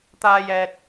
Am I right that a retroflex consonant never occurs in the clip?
yes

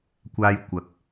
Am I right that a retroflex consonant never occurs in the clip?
yes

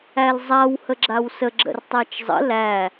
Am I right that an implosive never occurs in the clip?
yes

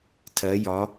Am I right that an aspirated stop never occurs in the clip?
no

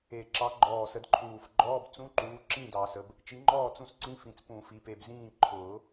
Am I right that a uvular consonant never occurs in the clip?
yes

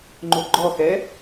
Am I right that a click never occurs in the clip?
no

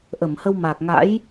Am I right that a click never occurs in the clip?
yes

